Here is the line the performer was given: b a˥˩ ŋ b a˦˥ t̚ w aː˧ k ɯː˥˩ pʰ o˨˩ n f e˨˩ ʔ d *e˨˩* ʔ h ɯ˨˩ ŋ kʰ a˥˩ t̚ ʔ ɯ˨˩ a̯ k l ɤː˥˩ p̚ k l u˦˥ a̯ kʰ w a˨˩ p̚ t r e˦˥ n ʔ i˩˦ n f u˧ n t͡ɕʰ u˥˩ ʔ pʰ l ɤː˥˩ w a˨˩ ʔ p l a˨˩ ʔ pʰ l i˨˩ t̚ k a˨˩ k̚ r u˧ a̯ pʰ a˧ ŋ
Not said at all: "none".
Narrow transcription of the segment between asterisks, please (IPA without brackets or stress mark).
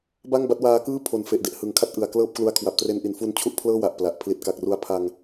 e˨˩